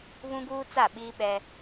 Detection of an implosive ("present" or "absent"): present